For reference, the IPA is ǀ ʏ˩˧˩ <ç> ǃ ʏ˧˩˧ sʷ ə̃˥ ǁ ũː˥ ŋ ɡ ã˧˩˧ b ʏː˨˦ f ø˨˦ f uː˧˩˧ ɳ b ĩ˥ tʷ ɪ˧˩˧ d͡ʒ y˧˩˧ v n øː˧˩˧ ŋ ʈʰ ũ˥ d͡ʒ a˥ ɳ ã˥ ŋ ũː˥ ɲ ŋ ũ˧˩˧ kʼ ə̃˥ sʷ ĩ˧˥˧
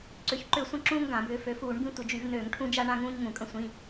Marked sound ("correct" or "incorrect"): correct